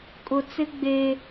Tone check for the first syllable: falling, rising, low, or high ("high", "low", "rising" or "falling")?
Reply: low